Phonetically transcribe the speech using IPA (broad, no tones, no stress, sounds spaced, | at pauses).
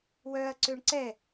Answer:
w œ ɐ̯ ǀ ø ɳ ǀ ɛ